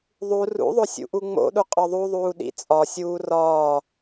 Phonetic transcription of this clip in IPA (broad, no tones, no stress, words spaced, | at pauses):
ðˤu rṵðˤo sʲṵʔuŋ͡mo̰ɗu qʼɒðˤuðˤuː ɗḭt͡sʼɒsʲuː rɒː